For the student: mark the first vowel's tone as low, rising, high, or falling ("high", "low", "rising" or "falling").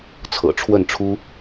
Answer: low